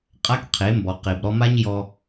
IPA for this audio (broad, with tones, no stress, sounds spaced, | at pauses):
qʼ a˦ k qʰ e˨˦ m b ɔ˨ q e˨ b ɾ ɔ˧ m a˦ ɲ j ɔ˧